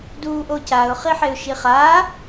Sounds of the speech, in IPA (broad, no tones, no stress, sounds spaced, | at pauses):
d uː ʔ o c a ʊ̯ χ i ħ e ʊ̯ ʃ i χ aː